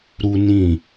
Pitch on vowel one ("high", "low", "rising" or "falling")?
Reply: high